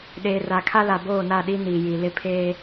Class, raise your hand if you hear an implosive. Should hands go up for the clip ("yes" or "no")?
yes